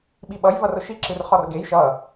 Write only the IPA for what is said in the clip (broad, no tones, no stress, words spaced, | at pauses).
ɓiɓʌj vʌrʊʃi ǁɨrχɔrɡej ʃʌ